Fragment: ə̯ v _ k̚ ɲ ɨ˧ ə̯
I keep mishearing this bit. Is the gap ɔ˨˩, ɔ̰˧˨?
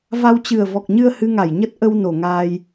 ɔ˨˩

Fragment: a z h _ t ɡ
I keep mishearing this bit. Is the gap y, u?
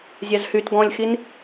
y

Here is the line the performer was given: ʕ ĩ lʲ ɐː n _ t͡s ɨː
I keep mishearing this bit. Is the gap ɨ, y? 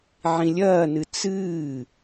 ɨ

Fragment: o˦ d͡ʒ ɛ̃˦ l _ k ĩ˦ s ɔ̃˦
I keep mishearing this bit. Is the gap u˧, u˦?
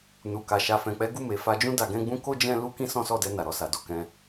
u˦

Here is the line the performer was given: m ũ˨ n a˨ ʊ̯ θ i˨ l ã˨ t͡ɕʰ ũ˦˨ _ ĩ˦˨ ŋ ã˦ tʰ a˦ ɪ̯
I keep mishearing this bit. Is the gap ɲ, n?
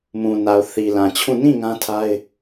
n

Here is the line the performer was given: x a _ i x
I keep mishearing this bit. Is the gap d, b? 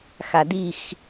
d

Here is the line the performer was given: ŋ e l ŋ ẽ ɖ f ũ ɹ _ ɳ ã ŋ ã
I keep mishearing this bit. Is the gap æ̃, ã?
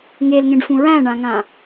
æ̃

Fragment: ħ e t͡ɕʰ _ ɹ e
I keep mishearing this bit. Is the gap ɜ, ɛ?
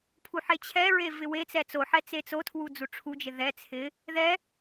ɛ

